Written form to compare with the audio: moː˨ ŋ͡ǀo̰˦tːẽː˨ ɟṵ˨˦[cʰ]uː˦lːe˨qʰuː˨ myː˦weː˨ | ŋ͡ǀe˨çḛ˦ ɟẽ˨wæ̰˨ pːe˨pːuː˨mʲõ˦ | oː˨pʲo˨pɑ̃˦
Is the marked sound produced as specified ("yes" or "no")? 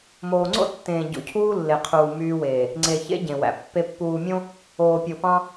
yes